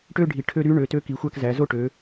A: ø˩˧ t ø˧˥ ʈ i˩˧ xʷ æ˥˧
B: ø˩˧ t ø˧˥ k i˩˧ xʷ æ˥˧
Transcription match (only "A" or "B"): B